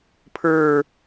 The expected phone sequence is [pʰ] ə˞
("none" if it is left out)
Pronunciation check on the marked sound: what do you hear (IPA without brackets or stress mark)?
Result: pʰ